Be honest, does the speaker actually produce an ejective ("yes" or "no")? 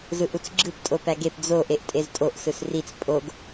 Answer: yes